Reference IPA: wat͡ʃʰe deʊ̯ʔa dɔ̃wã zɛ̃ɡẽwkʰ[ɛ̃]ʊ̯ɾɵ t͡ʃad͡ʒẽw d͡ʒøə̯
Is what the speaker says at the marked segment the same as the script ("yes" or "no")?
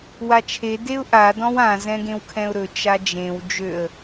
yes